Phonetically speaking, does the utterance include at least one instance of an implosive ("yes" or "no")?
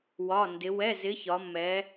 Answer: no